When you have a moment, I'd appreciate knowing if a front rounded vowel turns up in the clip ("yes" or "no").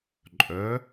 yes